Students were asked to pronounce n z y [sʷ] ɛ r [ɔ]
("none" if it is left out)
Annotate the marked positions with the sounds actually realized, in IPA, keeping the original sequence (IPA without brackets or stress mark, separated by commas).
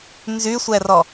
sʷ, ɔ